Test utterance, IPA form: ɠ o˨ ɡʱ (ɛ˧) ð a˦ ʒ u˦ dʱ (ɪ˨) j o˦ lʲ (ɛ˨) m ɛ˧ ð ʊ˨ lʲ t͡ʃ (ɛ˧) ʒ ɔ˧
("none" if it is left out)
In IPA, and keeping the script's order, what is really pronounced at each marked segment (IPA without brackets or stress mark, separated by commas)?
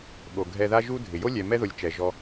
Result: ɛ˧, ɪ˨, ɛ˨, ɛ˨